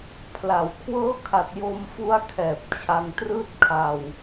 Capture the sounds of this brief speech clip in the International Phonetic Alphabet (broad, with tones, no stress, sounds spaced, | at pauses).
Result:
pʰ l a˩˦ w kʰ w ɤː˦˥ kʰ a˨˩ t̚ j o˧ m f u˦˥ a̯ kʰ ɛː˨˩ p̚ t͡ɕʰ a˧ ŋ t r ɯː˥˩ t̚ kʰ a˧ w